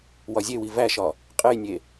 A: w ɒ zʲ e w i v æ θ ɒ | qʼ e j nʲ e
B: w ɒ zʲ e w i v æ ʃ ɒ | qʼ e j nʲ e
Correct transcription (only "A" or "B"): B